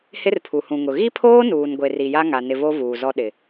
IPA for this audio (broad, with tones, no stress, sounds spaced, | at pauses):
h ɪ˦ r pʰ u˨ h ũ˨ ŋ ʊ˨ ɣ i˦ pʰ oː˦ n uː˨ n ɡʷ e˨ r i˨ j a˦ ŋ a˨ n ɪ˨ v o˦ v uː˨ z ɔ˦ ɗ ɪ˨